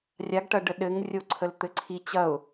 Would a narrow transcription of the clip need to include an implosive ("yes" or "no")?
yes